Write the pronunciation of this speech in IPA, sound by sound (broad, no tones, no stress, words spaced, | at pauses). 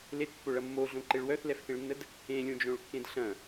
letpːoɭɐ mːoɮõǃeɭ wœθlɛfθẽɭnːəd | ẽlʲõd͡ʒõɭkːẽd ɬɐ̃